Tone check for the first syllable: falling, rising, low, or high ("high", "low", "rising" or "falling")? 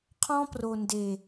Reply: high